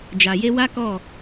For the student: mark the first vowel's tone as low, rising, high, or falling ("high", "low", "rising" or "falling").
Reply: low